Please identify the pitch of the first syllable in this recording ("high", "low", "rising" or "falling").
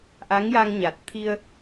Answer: rising